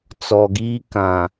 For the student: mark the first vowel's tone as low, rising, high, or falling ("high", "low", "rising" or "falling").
low